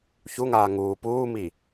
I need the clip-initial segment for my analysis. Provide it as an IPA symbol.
ç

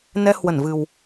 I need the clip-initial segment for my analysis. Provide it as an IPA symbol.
n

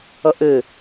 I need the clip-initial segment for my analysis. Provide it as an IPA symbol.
ʌ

